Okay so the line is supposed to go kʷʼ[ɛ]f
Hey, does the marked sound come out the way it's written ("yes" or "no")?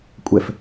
yes